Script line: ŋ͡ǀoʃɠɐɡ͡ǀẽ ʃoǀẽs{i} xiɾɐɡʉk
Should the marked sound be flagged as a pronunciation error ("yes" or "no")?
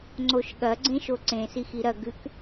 no